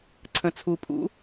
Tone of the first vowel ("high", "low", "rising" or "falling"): low